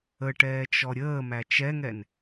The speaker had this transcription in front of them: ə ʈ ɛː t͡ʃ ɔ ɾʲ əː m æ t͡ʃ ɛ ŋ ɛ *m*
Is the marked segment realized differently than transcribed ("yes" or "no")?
yes